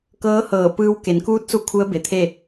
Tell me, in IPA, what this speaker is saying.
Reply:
k ɤː˧˥ h ɤː˧˩ p ɯː˧ w k e˩˧ n k uː˧˥ t̚ s u˧ kʰ u˧˥ ə̯ b e˩˧ t̪ʰ e˥˨

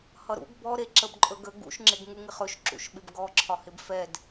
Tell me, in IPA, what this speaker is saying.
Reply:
h ʌ ɾ ṵ ɡ b ɔ ɾ e ǁ ə b ǃʼ ɵ ɡ ə ɡ ṵ ʃ ŋ͡ǁ ɪ ɡ ŋ u ŋ ɪ χ ɵ ʃ ǁ ṵ ʃ ɓ ɪ b ɡ ɔ ǁʰ ɒ h ɪ b f ɛ d

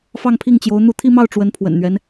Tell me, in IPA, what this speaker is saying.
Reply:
f ɑ˥˧ ŋ pʰ i˥˩ ŋ t͡ɕ j o˧˥ ʊ̯ n̪ u˥˧ t̪ʰ i˥˧ m ɑ˥˩ ʊ̯ ʈ͡ʂ w ə˧˥ n pʰ w ə̰˨˩ n n̪ ɥ ɛ˦ n

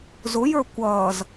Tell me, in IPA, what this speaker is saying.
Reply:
z ʊ j ə˞ kʷ ʌː z

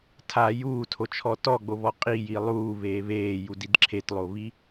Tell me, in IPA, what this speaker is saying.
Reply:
tʰ a j uː tʰ o t͡ʃʰ ɔ t ɔ ɡ͡b o β ɔ qʼ i j i lˠ uː β eː β eː j u d i d ǁʰ e t lˠ o β i

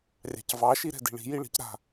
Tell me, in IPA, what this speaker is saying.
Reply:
rʲ ɑ̤ c v ɑ ʃ i ɾ ɛ̤ d i̤ ɭ i̤ j i ɭ i̤ c ɾ a̤

